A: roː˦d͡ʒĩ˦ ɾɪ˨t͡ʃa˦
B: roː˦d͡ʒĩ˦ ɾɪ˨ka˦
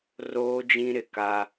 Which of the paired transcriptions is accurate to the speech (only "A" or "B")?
B